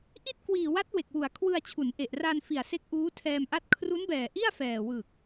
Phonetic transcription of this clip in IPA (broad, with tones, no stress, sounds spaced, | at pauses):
ʔ i˥˩ t̚ k w iː˨˩ w a˦˥ t̚ w e˨˩ k̚ w u˨˩ a̯ kʰ w ɯ˧ a̯ t͡ɕʰ u˩˦ n ʔ e˨˩ ʔ r a˧ n f i˨˩ a̯ s e˦˥ k̚ ʔ uː˦˥ tʰ ɛː˧ m ʔ a˥˩ t̚ kʰ r u˦˥ n b ɛː˨˩ ʔ i˥˩ a̯ f ɛː˨˩ w ɯ˨˩ k̚